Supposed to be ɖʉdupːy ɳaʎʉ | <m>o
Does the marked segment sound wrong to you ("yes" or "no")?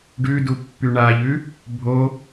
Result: yes